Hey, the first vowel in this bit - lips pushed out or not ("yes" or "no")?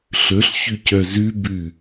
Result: yes